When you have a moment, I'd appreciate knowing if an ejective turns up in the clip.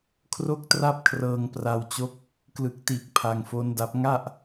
no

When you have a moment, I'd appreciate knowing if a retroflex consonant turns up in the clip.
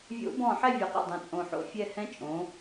no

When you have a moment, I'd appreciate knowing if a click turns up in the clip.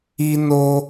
no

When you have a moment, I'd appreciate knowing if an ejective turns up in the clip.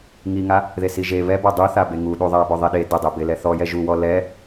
no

